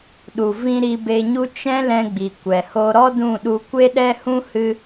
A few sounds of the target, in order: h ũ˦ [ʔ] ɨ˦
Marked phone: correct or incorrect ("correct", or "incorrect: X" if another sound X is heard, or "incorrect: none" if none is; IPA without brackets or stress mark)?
incorrect: h